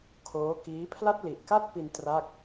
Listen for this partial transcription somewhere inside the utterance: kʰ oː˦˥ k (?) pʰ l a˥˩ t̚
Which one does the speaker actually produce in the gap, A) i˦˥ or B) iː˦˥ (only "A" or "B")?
B